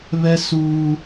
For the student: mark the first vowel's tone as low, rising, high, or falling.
high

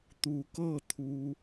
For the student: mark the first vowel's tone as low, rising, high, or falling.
rising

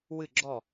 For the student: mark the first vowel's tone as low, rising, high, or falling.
falling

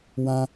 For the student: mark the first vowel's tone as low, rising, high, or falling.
high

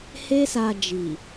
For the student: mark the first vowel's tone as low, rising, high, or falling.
high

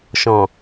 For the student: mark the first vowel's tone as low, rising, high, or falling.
low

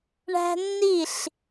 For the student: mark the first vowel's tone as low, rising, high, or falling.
high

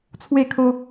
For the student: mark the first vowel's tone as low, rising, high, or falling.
falling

